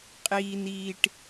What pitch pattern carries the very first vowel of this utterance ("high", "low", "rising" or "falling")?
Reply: low